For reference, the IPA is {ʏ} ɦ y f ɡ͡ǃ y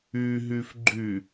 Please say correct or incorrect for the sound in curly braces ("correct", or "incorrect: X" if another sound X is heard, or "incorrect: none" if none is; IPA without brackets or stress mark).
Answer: incorrect: y